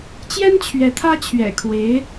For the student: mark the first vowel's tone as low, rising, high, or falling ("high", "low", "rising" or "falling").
high